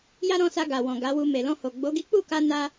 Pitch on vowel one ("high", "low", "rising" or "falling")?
high